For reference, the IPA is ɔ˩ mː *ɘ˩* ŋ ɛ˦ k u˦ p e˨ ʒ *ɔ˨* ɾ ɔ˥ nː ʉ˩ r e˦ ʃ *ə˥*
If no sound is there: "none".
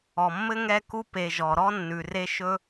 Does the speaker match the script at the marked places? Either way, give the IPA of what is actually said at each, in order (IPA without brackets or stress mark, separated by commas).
ɘ˥, ɔ˩, ɵ˥